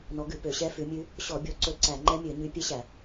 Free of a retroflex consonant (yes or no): yes